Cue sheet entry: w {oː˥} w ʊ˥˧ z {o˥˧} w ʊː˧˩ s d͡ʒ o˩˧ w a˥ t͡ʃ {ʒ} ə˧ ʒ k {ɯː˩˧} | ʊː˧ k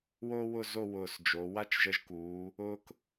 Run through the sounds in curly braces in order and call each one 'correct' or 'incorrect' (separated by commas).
correct, correct, correct, incorrect